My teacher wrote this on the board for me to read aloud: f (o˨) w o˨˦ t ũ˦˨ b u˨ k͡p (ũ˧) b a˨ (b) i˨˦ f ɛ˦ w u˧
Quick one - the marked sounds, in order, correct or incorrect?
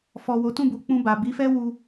incorrect: ɔ˨, correct, correct

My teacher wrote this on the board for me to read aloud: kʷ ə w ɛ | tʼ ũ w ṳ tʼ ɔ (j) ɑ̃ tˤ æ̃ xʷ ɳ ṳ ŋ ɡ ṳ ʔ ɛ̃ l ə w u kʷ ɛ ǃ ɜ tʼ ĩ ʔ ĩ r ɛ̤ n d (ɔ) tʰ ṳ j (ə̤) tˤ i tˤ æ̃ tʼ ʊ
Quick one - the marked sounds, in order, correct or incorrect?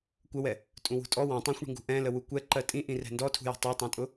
incorrect: w, correct, correct

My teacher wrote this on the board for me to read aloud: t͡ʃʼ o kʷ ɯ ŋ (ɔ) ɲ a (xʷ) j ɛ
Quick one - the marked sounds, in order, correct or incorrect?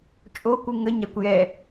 incorrect: ə, incorrect: kʷ

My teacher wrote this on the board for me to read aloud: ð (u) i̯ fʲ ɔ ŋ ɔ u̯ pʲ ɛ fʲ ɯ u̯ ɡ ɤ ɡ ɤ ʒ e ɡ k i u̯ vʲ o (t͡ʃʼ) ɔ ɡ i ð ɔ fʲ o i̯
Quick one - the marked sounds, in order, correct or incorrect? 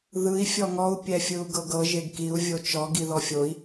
incorrect: ɯ, incorrect: t͡ʃ

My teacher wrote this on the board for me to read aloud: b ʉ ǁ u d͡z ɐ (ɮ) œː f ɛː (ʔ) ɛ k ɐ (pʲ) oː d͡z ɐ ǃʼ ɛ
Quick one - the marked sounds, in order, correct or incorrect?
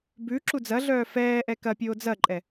correct, correct, correct

